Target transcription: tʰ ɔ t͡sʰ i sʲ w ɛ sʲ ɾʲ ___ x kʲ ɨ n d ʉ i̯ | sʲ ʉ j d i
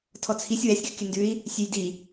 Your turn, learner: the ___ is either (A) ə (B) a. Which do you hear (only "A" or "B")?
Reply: A